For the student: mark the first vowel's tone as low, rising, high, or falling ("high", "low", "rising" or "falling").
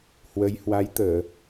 rising